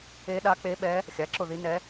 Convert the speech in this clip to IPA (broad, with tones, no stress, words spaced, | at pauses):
e˧˥ɗa˧˥k͡pe˧˥ɓɛ˧˥ | xʲa˩˥ǁʊ˥˩ði˧˥nɛ˧˥